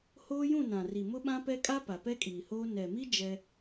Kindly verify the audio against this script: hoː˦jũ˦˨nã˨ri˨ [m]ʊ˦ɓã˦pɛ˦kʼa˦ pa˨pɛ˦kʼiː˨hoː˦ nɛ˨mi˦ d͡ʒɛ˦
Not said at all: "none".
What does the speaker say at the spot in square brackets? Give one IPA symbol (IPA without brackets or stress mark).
m